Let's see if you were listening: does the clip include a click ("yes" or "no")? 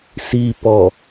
no